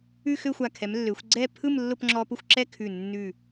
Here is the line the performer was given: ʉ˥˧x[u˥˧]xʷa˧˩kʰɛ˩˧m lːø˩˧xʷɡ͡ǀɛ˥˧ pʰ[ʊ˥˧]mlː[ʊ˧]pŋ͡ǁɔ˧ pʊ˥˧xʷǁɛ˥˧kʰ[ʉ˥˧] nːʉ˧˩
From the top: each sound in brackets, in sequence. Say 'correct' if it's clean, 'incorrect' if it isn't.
incorrect, incorrect, incorrect, incorrect

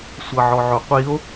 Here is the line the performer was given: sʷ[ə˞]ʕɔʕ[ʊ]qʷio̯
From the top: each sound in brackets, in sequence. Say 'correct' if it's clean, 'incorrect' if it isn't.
incorrect, correct

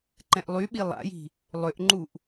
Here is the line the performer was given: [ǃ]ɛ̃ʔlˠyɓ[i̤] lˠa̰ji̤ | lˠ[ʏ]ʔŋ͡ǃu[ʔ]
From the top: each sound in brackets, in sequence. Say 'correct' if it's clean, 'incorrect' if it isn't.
correct, incorrect, correct, correct

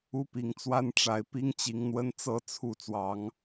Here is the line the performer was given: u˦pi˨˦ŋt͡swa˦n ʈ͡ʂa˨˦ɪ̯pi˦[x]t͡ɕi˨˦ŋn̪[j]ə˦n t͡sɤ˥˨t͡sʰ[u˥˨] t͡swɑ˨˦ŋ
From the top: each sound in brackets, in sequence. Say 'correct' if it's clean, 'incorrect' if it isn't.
incorrect, incorrect, correct

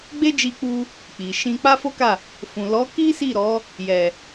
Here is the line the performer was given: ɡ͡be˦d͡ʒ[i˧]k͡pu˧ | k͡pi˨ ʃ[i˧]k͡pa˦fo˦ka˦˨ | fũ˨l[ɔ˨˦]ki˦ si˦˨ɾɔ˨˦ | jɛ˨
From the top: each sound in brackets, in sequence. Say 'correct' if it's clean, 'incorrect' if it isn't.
correct, incorrect, correct

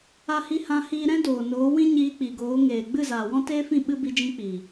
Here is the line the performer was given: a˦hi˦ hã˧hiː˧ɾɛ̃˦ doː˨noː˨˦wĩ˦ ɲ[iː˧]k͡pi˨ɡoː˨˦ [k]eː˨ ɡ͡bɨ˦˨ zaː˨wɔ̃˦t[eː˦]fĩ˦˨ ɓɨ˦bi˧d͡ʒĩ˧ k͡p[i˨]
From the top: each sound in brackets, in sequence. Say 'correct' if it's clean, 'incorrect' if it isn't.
correct, incorrect, correct, correct

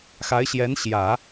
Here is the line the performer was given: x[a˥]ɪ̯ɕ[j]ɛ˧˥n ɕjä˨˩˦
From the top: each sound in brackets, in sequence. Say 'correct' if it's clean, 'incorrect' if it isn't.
incorrect, correct

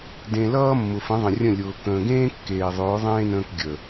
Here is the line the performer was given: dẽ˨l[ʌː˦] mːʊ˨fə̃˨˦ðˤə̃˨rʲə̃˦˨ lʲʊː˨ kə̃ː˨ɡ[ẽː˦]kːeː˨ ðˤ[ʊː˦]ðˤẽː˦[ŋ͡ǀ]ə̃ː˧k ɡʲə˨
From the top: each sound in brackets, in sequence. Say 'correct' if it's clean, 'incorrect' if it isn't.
correct, correct, incorrect, incorrect

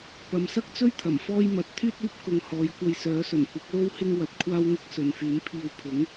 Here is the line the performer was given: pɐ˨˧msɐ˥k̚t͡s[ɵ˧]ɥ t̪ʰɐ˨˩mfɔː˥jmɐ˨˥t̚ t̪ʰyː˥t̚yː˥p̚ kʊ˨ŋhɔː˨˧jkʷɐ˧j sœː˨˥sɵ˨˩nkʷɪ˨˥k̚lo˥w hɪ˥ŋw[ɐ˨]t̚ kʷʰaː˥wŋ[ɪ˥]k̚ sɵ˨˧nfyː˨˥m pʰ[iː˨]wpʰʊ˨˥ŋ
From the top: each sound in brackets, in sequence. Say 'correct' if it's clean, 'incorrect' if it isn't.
incorrect, correct, correct, incorrect

